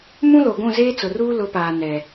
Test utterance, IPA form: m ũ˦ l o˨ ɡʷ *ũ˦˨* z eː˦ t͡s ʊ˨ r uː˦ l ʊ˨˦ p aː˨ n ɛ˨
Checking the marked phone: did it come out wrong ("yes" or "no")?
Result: no